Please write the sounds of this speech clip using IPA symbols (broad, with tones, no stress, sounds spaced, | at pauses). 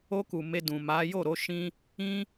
o˧ k u˨ m e˧ d ũ˨ m a˨˦ j o˦˨ ɾ o˨˦ ʃ ĩ˦ | ĩ˧